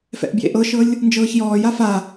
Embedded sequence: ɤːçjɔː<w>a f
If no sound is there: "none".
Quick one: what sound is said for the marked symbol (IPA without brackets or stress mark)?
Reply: j